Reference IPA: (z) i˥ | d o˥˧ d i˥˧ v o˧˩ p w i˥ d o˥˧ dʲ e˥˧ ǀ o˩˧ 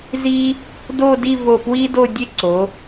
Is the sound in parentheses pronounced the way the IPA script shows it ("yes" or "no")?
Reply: yes